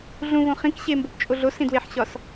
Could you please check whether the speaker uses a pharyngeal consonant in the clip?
yes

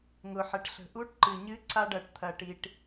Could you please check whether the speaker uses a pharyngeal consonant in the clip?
yes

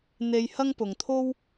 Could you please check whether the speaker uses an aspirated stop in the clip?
yes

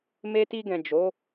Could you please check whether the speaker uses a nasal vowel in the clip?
yes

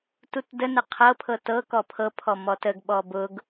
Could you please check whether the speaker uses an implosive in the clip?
yes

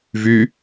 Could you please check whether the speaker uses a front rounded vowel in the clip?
yes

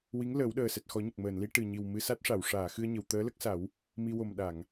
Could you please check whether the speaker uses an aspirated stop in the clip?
no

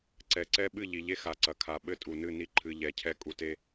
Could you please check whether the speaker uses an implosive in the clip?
yes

